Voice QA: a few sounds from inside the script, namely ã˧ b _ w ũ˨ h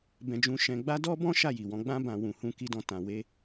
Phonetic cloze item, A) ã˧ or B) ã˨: B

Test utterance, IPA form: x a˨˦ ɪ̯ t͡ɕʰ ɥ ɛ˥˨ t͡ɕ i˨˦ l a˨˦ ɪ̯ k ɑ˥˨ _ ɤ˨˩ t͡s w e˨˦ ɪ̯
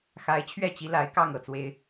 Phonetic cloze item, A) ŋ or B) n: A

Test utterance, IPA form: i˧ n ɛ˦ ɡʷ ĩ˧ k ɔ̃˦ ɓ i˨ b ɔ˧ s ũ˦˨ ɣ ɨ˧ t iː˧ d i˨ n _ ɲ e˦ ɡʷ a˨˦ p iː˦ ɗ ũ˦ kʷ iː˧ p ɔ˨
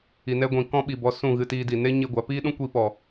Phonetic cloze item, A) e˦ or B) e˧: A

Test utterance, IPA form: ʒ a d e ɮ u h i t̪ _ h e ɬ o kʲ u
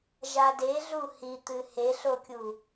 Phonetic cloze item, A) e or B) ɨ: B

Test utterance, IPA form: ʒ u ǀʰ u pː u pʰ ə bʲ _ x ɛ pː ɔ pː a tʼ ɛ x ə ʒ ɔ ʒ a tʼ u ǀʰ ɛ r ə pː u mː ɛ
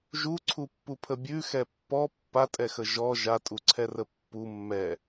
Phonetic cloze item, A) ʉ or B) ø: A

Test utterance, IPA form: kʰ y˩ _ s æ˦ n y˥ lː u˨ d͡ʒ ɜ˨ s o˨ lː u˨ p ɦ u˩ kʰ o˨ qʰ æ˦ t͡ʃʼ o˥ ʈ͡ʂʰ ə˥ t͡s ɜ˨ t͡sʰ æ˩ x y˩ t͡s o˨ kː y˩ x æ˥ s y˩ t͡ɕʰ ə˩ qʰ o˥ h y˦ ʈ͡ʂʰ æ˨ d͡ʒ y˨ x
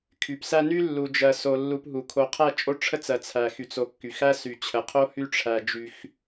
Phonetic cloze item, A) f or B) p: B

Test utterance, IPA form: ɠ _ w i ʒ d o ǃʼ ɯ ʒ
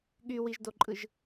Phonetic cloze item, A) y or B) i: A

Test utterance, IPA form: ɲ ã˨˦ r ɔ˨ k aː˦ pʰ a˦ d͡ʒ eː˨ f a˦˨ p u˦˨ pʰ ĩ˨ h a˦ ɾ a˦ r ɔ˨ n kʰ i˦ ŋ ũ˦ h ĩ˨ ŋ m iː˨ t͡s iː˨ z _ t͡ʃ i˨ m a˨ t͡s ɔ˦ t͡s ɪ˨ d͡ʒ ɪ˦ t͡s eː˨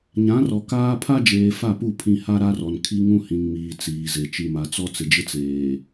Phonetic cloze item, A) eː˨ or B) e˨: B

